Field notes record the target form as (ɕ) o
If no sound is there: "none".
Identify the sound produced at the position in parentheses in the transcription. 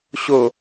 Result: ɕ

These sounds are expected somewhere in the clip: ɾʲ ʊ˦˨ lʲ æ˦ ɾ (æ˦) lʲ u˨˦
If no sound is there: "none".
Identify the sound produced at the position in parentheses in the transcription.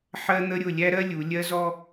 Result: ɜ˦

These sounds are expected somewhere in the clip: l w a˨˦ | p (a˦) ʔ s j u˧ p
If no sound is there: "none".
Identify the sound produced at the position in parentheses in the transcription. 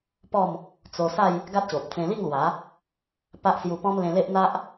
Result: a˦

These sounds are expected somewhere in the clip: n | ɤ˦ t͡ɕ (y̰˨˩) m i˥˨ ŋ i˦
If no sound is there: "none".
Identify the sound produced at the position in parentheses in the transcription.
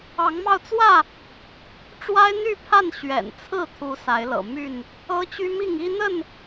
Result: y˦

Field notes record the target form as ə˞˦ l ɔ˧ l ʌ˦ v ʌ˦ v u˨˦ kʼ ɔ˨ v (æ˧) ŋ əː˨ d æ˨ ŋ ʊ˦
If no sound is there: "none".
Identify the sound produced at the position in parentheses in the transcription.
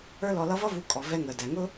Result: ɛ˧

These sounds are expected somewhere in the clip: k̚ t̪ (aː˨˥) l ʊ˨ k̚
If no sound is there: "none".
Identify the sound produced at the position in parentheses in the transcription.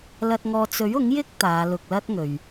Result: aː˨˧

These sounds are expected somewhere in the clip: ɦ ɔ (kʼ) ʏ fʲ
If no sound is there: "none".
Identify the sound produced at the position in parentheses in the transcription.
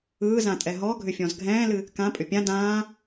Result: ɡʱ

